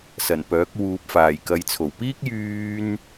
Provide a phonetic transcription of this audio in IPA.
s ɐ˨˩ n p œː˨˥ k̚ w uː˨ p̚ f aː˨˩ j k ɐ˨˧ j t͡sʰ o˨˩ w p iː˥ k̚ j yː˥ n

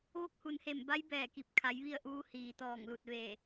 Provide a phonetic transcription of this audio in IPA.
ʋ o˧˥ k̚ h u˩ n h e˧˩ m b a˧˥ j b ɛː˧˩ k i˧˩ p̚ kʰ a˩˧ j ʋ i˥˨ ə̯ ʔ uː˧˥ h iː˩ t̪ ɔː˧˩ ŋ l u˧˩ t̚ ʋ e˧˩

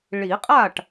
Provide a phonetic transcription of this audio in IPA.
ɭ i˨˩˦ qʼ a˥˩ ʈ

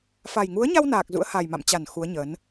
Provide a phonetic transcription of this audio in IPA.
f a˨˩ j ŋ u˨˦ ə̯ ɲ a˧ w n aː˨˩ k̚ z ṵ˧˥ ə̯ h a˨˩ j m a̰˧˨ m t͡ɕ a˧˩ n x u˨˦ ə̯ ɲ ə˨˦ n

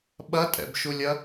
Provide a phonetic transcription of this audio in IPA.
ɓ ɐ tʼ ɛ̰ b ʃ u lʲ ɐ

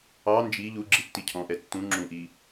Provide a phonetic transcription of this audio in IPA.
ɑ n d͡ʒ i ʎ u ɡ͡ǁ i tː i cʰ ɔ̃ ʔ ɛ tː ũ ŋ͡ǁ ũ ʔ i

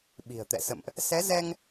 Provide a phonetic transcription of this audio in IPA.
ɓ i̤˨˩ ə̯ t̪ ɛ̰˧˨ s ə̰˧˨ m ʔ | s ɛ˨˦ z ɛ˧ ŋ

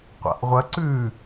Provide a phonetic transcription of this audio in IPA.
qʷ a̰ ʔ ʁʷ ɐ ǀ ʉ

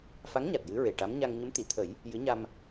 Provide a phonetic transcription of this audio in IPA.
f a˧˥ ŋ ɲ a˨˩ t̚ j ɨ˧˥ ɹ e˨˩ ʈ a˧˥ m ɲ a˧ ŋ ɲ ə˧˥ m t̪ i˨˩˨ t̪ʰ ə˨˩˦ j | j ɨ˧˥ ɲ a˧ m

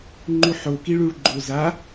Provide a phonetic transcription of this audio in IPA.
ŋ͡ǃ u ħ o k i ɭ u ɭ ɡ͡ǃ o z a

